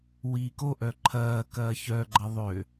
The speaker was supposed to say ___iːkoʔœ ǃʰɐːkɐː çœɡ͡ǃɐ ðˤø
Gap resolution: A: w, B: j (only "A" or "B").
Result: A